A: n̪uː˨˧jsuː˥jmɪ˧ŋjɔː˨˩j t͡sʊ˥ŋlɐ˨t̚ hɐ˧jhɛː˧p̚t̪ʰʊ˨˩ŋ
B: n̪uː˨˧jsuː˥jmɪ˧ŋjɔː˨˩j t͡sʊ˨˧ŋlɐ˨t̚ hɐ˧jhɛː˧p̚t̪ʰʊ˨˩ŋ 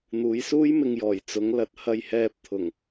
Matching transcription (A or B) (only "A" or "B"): B